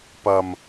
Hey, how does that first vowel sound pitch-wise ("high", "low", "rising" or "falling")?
low